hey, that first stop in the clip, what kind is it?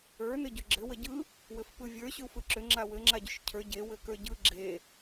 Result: plain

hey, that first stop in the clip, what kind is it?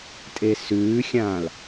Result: ejective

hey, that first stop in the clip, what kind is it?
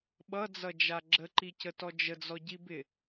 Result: implosive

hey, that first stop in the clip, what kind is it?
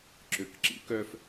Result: click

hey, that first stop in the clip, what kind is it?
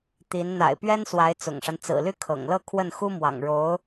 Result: plain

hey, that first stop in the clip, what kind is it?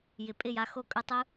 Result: ejective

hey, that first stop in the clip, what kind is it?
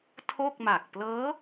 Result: aspirated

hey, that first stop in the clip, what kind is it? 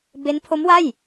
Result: plain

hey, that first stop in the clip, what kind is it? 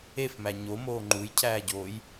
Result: click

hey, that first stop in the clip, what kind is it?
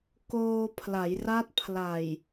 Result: plain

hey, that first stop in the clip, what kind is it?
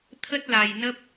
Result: aspirated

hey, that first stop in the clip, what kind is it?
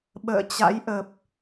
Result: implosive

